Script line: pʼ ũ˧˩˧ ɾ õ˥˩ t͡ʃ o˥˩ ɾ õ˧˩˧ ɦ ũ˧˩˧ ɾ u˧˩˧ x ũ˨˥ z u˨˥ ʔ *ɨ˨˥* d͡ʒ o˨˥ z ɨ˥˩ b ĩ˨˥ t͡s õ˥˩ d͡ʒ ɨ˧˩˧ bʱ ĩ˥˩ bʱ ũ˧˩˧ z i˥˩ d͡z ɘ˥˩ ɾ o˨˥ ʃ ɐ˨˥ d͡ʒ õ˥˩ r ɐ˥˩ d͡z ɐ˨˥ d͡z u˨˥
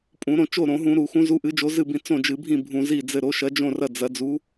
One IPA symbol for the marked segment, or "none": ɨ˨˥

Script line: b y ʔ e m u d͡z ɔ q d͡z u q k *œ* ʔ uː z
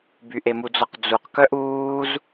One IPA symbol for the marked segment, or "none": œ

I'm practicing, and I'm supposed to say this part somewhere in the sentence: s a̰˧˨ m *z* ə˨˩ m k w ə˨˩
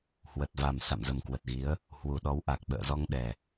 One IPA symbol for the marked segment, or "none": z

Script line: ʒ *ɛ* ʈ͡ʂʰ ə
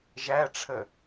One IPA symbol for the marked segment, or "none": æ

